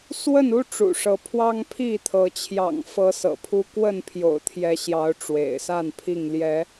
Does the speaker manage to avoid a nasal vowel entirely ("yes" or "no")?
yes